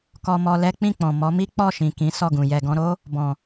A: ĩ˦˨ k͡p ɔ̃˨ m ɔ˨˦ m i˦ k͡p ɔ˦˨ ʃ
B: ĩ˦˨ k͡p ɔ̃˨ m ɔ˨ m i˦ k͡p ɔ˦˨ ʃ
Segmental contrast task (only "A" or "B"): A